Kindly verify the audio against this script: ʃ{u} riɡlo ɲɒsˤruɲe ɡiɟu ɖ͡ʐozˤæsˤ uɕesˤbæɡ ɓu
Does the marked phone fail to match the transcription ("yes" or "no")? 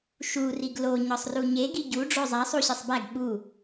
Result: no